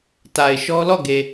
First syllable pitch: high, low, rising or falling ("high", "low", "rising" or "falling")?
low